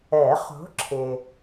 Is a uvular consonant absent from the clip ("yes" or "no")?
no